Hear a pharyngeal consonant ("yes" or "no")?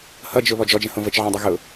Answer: yes